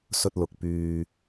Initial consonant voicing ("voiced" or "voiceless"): voiceless